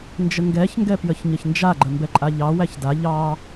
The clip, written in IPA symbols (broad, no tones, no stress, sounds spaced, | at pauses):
n d͡ʒ ə ŋ ɡ ɛ ç ŋ ɡ ɛ p j ə ç ɲ ə ç n d͡ʒ a ɡ͡ǃ ə m b ɛ ǃʼ a ʎ ɑ w æ ç d a ʎ ɑ